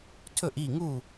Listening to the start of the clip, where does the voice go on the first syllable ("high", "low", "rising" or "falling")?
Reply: falling